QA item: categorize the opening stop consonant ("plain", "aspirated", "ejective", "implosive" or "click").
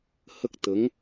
plain